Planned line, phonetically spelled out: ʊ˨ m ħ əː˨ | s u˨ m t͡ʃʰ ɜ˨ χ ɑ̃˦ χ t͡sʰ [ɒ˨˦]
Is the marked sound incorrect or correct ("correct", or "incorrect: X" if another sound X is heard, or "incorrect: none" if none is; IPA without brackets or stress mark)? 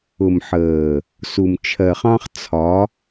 correct